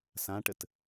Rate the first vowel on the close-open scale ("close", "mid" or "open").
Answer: open